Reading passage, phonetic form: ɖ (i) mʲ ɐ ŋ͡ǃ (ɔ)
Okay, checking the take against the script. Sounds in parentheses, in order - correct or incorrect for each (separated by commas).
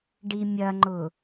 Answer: correct, incorrect